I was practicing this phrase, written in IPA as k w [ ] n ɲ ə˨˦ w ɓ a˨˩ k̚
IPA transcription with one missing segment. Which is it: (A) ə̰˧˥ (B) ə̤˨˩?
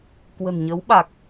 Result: B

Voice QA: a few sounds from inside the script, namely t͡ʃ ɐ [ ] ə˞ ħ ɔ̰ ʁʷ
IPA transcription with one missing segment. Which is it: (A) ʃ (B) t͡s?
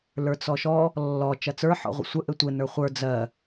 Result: B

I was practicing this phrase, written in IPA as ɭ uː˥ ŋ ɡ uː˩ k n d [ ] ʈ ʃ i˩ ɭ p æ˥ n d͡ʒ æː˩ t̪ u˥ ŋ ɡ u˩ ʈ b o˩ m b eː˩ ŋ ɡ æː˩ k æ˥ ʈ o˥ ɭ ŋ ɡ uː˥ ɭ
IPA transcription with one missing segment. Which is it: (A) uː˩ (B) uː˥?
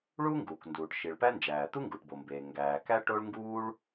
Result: A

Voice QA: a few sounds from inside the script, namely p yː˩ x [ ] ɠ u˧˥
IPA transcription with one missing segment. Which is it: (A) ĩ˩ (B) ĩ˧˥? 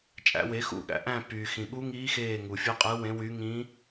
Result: A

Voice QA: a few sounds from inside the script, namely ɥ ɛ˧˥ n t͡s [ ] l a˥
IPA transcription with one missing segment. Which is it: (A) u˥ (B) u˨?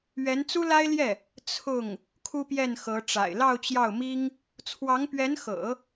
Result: A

